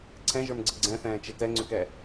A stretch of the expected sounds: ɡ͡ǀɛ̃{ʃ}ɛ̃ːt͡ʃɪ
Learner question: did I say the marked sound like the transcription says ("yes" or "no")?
no